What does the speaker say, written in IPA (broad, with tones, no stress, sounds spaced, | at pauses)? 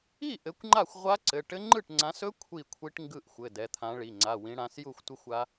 i˥˩ ʔ ɘ˨˦ kʷ ŋ͡ǃ a˥˩ xʷ ʁʷ a˦˥ ǀ ɘ˩˧˩ ʈ ɘ˦˥ ŋ͡ǃ ɯ˥˩ ʈ ŋ͡ǀ ã˨˦ s ɵ˦˥ kʷʰ i˥˩ kʷʰ i˦˥ ʈ ŋ ɡ ɯ˥˩ ʔ xʷ ɘ˩˧˩ d ɛ˩˧˩ t̪ʰ ã˨˦ ɭ i˩˧˩ ŋ͡ǀ a˩˧˩ w ĩ˨˦ ɽ ã˨˦ s j u˥˩ xʷ tʷ ɘ˦˥ xʷ a˦˥